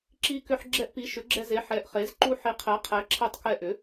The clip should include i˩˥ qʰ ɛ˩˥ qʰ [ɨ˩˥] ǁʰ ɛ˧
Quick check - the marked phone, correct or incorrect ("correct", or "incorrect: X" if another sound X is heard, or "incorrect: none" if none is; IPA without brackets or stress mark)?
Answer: incorrect: ɛ˩˥